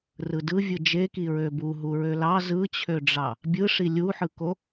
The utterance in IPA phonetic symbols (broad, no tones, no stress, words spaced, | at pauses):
rɯdɯvʲɯ d͡ʒeki ɹøbu ɦuɹølɑ zɯt͡ɕʰøɖ͡ʐɑ | bʲɯʂi lʲuħɯko